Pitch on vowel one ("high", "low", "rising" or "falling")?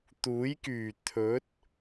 rising